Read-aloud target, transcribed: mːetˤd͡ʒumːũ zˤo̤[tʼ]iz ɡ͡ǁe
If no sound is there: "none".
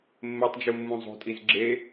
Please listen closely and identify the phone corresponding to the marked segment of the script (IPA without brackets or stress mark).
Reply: tʼ